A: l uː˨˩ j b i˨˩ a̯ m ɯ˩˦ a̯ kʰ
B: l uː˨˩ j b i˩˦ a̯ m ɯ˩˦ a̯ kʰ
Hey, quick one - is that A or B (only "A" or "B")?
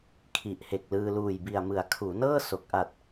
A